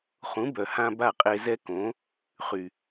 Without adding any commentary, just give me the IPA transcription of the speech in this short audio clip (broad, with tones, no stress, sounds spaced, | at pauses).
χ ũ˩˥ b œ˩ h ã˧ b a˥˩ qʼ e˧ z ɛ˥ k õ˩˥ | χ y˩